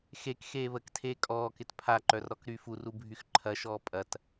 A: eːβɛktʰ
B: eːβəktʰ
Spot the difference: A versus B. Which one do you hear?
B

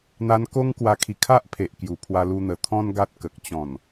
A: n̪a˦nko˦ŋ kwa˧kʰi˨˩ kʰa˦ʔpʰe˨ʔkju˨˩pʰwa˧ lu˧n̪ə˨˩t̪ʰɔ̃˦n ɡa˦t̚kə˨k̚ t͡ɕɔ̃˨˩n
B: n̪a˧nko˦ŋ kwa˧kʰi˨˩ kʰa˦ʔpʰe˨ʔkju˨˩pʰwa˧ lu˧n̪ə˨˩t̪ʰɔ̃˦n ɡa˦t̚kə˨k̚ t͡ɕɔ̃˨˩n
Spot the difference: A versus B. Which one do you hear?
B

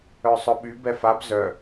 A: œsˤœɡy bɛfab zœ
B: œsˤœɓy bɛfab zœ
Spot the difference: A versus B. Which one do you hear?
B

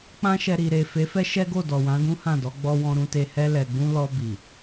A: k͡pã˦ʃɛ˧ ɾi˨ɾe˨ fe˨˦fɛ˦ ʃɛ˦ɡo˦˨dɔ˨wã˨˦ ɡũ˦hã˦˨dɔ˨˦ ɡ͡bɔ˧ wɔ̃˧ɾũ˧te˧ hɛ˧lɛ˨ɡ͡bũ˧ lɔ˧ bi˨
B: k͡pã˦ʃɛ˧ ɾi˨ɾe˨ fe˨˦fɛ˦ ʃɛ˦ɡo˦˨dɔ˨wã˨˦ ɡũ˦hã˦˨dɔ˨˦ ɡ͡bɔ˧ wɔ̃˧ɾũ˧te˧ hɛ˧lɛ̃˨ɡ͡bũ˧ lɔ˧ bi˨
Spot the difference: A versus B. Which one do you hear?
A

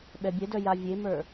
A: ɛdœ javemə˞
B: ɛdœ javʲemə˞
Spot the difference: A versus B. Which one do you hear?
B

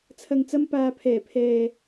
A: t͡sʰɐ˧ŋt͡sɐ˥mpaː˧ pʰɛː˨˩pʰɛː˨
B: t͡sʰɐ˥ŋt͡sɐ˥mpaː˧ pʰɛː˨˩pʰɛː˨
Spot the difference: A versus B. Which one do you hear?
A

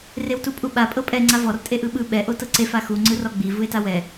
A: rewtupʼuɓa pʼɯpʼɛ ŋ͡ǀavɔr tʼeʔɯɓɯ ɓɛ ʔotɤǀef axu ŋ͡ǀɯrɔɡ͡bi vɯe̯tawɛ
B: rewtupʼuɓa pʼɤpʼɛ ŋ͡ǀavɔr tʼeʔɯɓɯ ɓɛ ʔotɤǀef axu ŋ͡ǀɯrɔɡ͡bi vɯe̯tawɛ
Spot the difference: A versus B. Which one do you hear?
B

